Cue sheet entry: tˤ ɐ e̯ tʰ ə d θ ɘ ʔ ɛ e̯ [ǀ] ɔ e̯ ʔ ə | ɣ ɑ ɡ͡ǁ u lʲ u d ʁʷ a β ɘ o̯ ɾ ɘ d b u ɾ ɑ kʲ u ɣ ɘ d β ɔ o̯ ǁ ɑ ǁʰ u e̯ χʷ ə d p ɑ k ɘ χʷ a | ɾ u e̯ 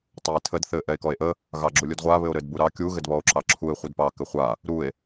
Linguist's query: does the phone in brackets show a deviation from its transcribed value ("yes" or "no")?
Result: yes